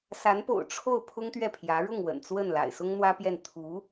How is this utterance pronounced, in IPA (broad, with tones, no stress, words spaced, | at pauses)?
sa˧˥npo̰˨˩ʊ̯ ʈ͡ʂʰo˥˩ʊ̯ pʰʊ˥ŋt̪ɥɛ˥˩pʰjä˧˥ ɻʊ˥˩ŋwə̰˨˩n t͡swə˥˩n la̰˨˩ɪ̯sʊ˥ŋ n̪wä˥pjɛ˥˩n t̪ʰu˧˥